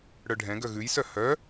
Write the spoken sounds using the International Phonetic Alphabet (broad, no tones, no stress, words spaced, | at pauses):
ɽœɖʱɛ̃ɡœ ɣʉjsœ hœ